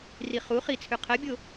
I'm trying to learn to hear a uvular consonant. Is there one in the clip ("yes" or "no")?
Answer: yes